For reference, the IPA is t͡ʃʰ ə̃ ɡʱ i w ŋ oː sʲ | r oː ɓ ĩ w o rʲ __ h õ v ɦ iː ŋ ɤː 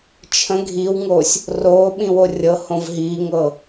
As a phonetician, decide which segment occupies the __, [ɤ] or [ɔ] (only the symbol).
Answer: ɤ